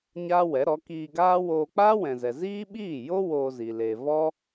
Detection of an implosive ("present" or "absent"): present